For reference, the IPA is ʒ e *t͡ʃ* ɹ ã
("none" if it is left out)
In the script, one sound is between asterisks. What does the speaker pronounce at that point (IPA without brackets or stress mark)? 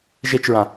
t͡ʃ